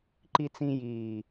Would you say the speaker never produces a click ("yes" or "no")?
no